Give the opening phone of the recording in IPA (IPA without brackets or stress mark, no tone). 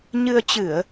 ɲ